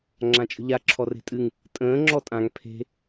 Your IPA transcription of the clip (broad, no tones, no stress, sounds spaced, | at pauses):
ŋ͡ǁ ã t͡ʃʼ ə̤ ʎ a ǁʰ ɔ r e̤ tʼ ɨ ŋ | tʼ ə̃ː ŋ͡ǁ ɔ tʼ ã ŋ pʰ e̤